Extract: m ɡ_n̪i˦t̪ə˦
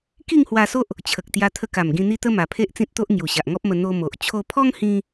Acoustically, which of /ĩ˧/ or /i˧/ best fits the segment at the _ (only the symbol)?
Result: ĩ˧